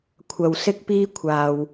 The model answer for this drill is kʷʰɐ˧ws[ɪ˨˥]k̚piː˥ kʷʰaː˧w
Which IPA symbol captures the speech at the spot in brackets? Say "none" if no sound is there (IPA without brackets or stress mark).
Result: ɪ˥